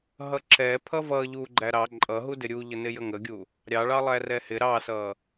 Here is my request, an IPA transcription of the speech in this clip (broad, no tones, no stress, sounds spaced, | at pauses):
ɦ ʌ ǁ ɛ pʰ ʌ v ʌ ʎ u ɡ͡ǃ æ ɾ ɑ ǃʼ ʌ ɦ u d ɪ ɾʲ u ʎ ə n ɪ j ə ŋ ə ɡʲ u | ɾʲ ɑ ɭ ɑ lˠ æ r ɛ h ɪ ɾ ɑ s ʌ